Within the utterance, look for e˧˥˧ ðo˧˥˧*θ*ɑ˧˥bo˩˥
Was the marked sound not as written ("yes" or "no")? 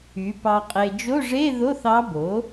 no